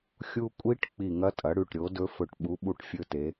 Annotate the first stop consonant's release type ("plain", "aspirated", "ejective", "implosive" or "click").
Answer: ejective